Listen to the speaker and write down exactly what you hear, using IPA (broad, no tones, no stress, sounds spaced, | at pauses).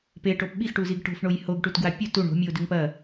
p e ʈ o p ɓ i x ʈ u z i ɡ ʈ o̤ f ɳ o j h o ɡ ʈ u t ɡ w a pʲ u t u ɳ o̤ mʲ u o̯ d ʉ ŋ p ɐ